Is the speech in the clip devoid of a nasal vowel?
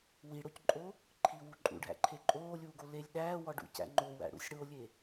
yes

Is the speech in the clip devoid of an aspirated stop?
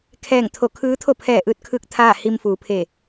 no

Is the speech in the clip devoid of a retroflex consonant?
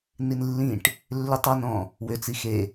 no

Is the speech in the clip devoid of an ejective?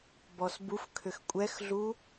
no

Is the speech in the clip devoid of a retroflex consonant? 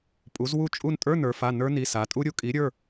yes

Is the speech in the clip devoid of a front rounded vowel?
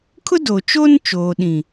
yes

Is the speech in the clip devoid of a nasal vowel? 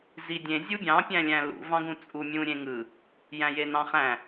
no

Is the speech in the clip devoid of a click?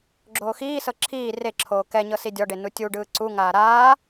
no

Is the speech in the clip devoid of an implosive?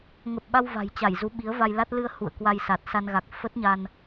no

